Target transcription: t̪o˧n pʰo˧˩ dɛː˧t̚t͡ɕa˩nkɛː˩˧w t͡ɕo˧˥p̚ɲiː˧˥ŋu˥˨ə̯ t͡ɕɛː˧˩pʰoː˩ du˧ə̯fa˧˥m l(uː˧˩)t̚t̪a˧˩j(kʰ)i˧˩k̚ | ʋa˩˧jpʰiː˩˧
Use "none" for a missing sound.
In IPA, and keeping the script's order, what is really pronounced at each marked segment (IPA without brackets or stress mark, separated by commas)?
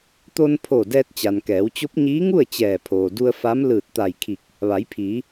ɯː˧˩, kʰ